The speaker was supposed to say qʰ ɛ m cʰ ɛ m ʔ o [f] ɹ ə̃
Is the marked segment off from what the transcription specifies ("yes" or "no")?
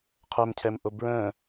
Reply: yes